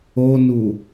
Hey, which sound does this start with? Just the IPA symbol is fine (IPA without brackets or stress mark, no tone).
o